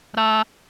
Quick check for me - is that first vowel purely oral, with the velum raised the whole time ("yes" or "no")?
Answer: yes